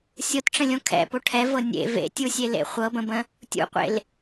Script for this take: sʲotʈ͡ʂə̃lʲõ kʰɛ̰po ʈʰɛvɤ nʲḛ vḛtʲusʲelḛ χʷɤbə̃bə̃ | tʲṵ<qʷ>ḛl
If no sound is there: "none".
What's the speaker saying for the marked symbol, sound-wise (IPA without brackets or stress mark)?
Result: qʷ